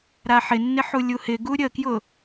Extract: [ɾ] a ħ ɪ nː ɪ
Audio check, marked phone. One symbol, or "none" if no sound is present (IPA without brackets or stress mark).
ɾ